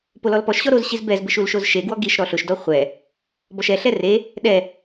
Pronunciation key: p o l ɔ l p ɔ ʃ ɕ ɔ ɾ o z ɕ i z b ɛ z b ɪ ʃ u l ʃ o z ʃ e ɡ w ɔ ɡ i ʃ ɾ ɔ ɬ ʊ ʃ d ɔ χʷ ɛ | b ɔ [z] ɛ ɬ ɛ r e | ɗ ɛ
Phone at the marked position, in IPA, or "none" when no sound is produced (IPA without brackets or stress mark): ʃ